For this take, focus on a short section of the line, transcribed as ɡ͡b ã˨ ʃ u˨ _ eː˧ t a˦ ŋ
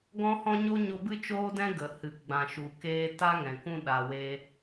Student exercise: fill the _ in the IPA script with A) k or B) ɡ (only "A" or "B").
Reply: A